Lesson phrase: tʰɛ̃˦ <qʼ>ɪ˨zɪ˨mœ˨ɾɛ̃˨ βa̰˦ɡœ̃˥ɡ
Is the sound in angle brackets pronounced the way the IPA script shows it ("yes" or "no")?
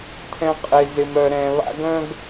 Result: yes